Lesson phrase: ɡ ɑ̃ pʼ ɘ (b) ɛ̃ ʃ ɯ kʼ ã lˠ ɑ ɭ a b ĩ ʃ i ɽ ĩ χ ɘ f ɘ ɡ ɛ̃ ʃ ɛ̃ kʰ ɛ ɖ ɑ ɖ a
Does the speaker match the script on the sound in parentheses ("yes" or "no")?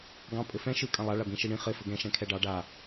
no